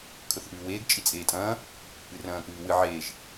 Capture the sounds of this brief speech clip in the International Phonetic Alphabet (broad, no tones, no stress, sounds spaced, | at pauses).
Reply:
kʰ ɵ θ ʔ ʉː w eː ɡ t͡ʃʼ i t͡sʼ eː tʼ ɐ̃ː | ɨ r ɐ̃ː k ʉː w ɨ ʕ eː ʒ